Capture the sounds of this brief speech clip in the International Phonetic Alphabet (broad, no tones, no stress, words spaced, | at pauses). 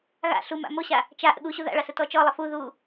ɣa̰ ɬuma̰ moɕa | t͡ʃa ʔə̰ɠuɕu ða̰ɭɑ sətɔt͡ʃɔlˠə fu ðu